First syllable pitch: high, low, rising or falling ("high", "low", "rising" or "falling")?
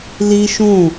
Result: high